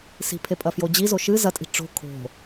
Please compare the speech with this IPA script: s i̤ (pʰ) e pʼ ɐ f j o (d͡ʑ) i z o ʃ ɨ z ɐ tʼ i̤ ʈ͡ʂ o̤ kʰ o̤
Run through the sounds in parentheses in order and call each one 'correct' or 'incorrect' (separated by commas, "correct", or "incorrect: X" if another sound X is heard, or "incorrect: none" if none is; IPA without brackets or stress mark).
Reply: correct, correct